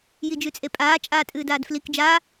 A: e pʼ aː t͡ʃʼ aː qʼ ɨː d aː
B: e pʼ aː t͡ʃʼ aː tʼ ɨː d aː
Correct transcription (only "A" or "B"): B